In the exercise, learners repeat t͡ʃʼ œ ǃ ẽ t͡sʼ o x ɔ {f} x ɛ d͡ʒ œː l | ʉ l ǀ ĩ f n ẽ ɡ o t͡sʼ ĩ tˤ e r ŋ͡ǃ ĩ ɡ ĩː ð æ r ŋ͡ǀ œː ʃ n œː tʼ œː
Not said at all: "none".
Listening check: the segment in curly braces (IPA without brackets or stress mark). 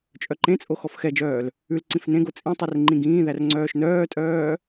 f